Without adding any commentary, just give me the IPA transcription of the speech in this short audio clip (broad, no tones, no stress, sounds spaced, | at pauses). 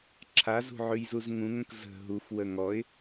ǁʰ a z ṳ ʕ ʉ j z u z ŋ ũ ŋ ə̃ k z ə̤ ɦ u f w ə ŋ ɔ ɪ̯